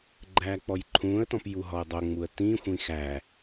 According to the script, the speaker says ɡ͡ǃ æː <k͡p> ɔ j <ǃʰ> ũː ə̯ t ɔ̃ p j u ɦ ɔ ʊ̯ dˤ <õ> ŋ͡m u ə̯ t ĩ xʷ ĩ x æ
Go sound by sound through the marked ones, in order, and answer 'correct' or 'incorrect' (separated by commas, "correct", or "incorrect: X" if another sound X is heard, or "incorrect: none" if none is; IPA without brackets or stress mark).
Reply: correct, correct, incorrect: o